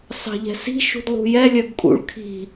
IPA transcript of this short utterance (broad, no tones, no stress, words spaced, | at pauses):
sɑ̤ʎɛ̤si̤ ʃṳdlˠṳjɛ lʲœɡkʼṵɭ kʰi̤